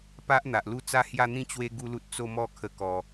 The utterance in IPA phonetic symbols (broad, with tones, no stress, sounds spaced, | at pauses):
p a˦ ʔ n̪ a˨ ʔ l u˥˧ t͡s a˦ h j a˥˧ n̪ ĩ˥˧ t͡ɕ w e˦ ɡ u˦ l u˦ t̚ t͡s o˥˧ m ɔ˥˧ kʰ ə˧ k ɔ˨˩